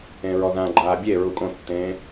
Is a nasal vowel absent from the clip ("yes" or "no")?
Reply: no